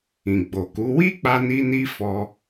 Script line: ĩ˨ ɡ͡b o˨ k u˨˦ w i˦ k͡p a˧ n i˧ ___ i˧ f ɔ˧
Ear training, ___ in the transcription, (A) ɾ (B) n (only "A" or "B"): B